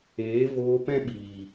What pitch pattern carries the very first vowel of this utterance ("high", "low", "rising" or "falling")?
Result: rising